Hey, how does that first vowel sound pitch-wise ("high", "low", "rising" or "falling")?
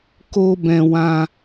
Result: high